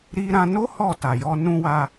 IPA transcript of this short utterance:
ɾi˧ɾã˧no˦ hɔ˦˨ta˨jɔ˧ nũ˧wa˧

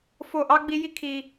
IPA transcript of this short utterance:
fo˦˨ʔɑ˦ɡ͡bi˦ji˦ kʰi˦

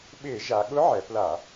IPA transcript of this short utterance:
ɓɪː˧˩˧ ʒa˩˧ɠʊ˧˥ ʕɛ˩˧pla˧˩˧

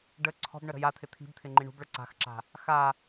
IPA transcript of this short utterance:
ɖə ǀʰɔ̤bɳə ɾə̤jat̪ʰɪ t̪ʰi̤bt̪ʰɪ ŋ͡ǃiɳṳbɭə ǀa̤xǁa̤ | xa

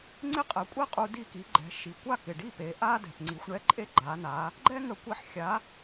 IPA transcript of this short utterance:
ŋ͡ǀɪ˥qʼɛ˩˥kʷʼɛ˥qʼu˧ di˥˩ki˩˥ɡ͡ǃɛ̤˩˥ ʃi˩kʷa˥˩kɪ˩ɖi˥˩ pe˩˥ʔa˥ dɛ̤˩pŋ͡ǀi˩˥xʷ ɳɛ˥ǃʼe˥ɡ͡ǃa˩˥na˩˥ | ɡ͡ǃɛ˥ŋə˧ kʷɛ˧ħxʲa˩˥

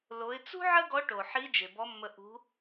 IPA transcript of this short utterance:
lo˩˧ɪ̯t͡sṳ˥ ʕə˥ɡɔ˧˥ ʈo˩ħi˧˥ d͡ʒe˩bɔ˧˥mːə˧ ʔṳ˧˥

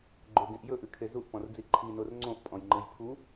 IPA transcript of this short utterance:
ɡ͡ǃɵɡẽʔ jɵʔɨkʰe zuʔpɔ̃rd͡zi ǃʰinor ŋ͡ǀõʔpʼɔ̃jŋ͡ǃɨj pʰu

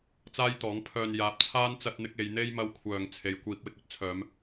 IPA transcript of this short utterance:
t͡saː˥jt̪ɔː˨˥ŋpʰœː˧n jaː˨˥p̚t͡sʰaː˥n t͡sɐ˧t̚n̪ɪ˧k̚ e˨˧jn̪e˥j mɐ˧wkʷʰœː˨ŋ t͡sʰe˨˧jkʷiː˧p̚ wɪ˧k̚ɵ˨˥t̚ t͡sʰœː˨˧m

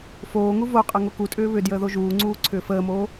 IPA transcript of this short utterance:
foːŋu voqʼə ŋokutʼʏː βʏ djəːðoʒuːŋ͡ǀuː ǀʰʏːfəːmoː

